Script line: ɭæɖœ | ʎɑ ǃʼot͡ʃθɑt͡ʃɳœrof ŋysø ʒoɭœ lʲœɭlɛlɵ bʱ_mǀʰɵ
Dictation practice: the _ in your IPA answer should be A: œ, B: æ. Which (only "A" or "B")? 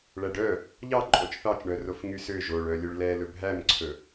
B